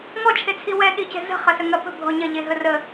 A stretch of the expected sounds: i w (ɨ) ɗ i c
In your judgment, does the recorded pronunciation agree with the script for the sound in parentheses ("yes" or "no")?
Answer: no